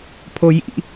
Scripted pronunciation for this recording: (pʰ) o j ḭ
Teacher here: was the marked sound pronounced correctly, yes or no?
yes